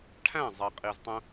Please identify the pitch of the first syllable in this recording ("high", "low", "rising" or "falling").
falling